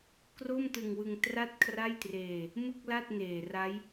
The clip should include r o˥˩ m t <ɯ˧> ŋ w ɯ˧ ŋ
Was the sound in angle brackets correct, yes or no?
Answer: yes